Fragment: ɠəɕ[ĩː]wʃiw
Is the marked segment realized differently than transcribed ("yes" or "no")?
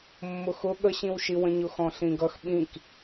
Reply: yes